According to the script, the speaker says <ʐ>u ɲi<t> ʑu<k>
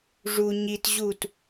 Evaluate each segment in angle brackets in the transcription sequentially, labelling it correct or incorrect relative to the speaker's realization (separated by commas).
correct, correct, incorrect